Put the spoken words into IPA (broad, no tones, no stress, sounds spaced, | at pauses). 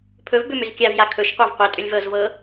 pʰ ɵ v b ʏ m ʏ z kʲ a v j a kʰ ɵ ʃ qʷ a v qʷ e tʼ ʏ lʲ v ɤ z v ɤ